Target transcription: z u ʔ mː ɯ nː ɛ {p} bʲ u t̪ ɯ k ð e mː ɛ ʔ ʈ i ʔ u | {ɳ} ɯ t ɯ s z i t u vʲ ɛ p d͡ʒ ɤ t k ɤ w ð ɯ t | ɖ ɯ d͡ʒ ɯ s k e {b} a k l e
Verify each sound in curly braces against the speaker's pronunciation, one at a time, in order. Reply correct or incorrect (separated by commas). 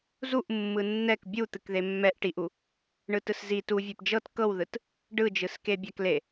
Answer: incorrect, correct, incorrect